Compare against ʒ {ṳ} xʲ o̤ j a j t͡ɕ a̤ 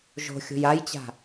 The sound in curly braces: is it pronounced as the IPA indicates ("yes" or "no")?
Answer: no